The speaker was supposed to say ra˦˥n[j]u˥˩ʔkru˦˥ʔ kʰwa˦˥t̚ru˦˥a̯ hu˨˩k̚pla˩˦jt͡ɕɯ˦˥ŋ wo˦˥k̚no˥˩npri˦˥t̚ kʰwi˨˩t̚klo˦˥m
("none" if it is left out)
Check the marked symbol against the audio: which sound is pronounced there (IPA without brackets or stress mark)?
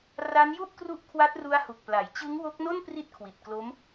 j